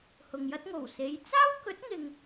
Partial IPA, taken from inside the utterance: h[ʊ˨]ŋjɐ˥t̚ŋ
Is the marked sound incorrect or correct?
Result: correct